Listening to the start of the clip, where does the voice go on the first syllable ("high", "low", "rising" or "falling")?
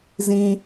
high